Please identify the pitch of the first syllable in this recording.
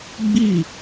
falling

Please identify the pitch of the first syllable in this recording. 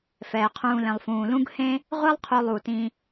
low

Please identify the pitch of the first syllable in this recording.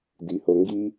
rising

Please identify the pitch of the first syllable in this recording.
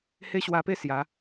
high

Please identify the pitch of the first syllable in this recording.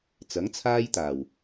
rising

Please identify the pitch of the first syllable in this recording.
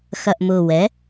low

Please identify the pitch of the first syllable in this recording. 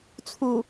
low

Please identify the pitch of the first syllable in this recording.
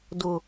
low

